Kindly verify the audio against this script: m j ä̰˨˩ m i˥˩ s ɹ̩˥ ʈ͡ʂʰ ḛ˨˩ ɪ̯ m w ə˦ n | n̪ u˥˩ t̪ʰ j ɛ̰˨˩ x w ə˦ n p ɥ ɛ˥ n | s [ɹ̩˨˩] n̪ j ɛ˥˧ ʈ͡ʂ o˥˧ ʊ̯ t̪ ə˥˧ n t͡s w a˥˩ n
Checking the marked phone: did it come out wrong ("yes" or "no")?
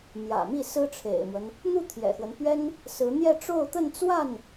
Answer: yes